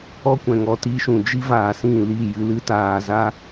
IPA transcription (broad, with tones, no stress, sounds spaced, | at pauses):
ɔ˦ kʷ ɛ̃˨ ŋ ɔ˧ t i˧ ʃ ũ˨ d͡ʒ i˦ v aː˨ s ĩ˦˨ l i˦˨ j ɨ˧ l ɨ˦ t aː˧ z a˦